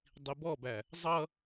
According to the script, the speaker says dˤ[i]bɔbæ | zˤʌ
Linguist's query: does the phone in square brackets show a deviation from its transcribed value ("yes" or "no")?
no